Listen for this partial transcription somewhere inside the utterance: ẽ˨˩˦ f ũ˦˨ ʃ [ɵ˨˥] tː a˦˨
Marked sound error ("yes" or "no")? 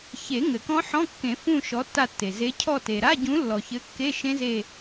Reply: yes